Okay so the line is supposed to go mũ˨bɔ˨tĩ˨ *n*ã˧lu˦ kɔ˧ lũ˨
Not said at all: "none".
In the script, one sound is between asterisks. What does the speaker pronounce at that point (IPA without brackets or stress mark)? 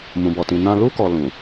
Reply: n